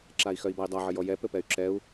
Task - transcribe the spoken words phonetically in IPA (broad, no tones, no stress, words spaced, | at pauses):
ǁai̯xœi̯bai̯dˤa ʕɘjɔjɛ pɘpɛy̯ǁɛu̯